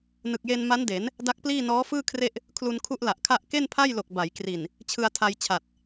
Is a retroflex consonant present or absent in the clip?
absent